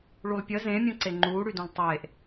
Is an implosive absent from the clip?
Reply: yes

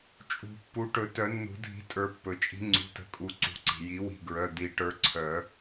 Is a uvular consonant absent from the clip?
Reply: yes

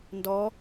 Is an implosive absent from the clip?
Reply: yes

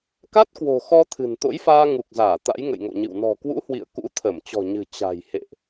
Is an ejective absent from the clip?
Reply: yes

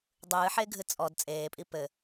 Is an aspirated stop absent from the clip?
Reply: yes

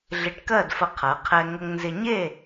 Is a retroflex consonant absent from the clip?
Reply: no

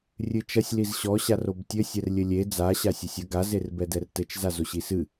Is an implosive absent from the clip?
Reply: yes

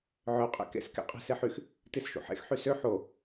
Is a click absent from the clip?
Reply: yes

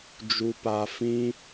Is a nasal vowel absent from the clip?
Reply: no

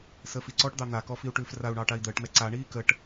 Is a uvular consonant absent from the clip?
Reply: yes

